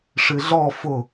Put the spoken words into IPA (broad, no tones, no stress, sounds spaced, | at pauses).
ʂ ɨ ɮ ɔ f ʊ